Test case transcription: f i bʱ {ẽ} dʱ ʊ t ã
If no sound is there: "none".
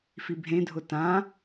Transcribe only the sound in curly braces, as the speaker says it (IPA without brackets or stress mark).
ẽ